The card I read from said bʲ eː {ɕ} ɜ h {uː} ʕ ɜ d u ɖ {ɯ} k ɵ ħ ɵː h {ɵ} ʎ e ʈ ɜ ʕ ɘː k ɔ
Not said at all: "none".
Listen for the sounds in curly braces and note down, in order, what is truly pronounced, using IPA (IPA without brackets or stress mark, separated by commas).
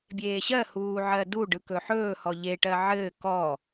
ɕ, uː, ɯ, ɔ